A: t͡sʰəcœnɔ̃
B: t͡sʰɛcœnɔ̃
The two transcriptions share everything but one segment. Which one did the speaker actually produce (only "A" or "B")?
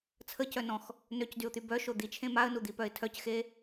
A